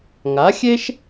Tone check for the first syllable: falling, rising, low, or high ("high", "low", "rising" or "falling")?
rising